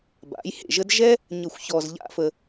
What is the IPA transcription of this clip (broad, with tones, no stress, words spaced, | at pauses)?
ba̰˨˦jhḛ˨ʒə˦d ʒɛ˦ | ɲə˦˨xʷçɔ˧zʎa̰˦fə˧